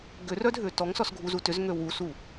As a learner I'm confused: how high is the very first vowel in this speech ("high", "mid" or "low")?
high